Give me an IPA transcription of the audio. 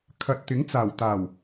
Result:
kʰɐ˨t̚t̪ɪ˨˥ŋt͡saː˨˩wt̪aː˨˩w

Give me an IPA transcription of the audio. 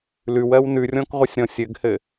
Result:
lʉwɜw nʉrʲɔ̃kʁʷɘsʲɾɔ̃ sʲɘɡhɘ

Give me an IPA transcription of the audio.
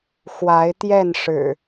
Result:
xwa˨˦ɪ̯t̪jɛ˥˨nʂɻ̩˨˩

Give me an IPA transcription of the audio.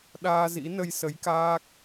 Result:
ɗaː˧zḭ˧˥ nə˧jsə˨˦jkaː˦˥k̚

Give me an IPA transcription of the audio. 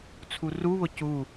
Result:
t͡sʰuruβʊ cu

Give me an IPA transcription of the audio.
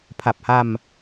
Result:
pʰa˨˩p̚ha˧m

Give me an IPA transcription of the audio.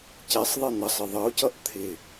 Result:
cɛsˤðˤi n̪ʌsˤɪ ðˤʌo̯cʌʔ t̪ʰɪ

